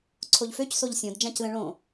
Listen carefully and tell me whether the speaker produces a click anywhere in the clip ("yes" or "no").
yes